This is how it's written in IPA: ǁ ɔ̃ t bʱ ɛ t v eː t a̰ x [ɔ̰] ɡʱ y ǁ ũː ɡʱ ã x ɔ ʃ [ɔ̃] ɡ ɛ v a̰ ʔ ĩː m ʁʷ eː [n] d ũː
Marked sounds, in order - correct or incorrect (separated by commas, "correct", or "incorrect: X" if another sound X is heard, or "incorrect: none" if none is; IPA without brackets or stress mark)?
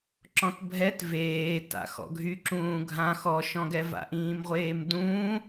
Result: correct, correct, incorrect: m